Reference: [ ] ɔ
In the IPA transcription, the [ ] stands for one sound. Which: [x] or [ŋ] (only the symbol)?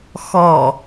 x